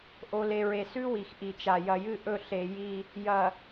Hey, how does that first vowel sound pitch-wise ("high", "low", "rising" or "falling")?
low